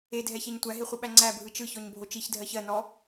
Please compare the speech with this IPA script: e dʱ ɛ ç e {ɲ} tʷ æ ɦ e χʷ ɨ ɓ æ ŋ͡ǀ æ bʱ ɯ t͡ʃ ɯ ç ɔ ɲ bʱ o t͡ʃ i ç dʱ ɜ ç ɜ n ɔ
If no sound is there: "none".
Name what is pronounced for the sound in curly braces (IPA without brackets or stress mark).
ɲ